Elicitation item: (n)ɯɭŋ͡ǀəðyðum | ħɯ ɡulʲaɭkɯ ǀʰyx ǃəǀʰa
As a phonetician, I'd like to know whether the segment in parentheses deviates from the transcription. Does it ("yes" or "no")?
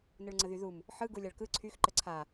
no